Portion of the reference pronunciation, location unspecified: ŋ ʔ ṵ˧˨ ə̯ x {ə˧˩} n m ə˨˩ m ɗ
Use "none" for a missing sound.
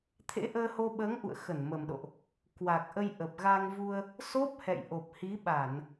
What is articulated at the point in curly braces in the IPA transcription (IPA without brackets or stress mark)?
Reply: ə˧˩